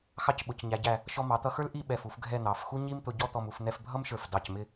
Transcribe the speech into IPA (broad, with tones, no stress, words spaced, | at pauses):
xɑ˥˧cɓʊ˩˧cɲæ˩˧ɟæ˧˩ | ʃɔ˧ mɑ˩˧t̪ʌ˧xə˞˥l ʔi˥˧ ɓɛ˧˩fu˩˧fɡʱɛ˥˧ n̪ɑ˩˧f xu˥ɲi˥mt̪ʊ˧ ɟɔ˥ t̪ɔ˧mu˩˧fn̪ɛ˥˧f bʱʌ˥mʃə˞˧˩f dɑ˧˩cmɪ˥˧